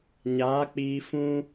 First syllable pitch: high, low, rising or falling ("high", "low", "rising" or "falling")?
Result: rising